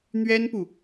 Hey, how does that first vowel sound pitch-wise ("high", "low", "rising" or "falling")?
high